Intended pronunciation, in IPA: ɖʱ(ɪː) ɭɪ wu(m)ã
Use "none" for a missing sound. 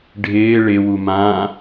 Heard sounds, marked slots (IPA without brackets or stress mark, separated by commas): ɪː, m